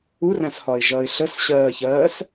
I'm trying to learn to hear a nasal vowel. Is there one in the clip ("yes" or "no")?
yes